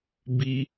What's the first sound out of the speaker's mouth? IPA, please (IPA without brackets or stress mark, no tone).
b